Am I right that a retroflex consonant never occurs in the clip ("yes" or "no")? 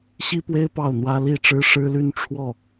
no